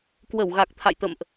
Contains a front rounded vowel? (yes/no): no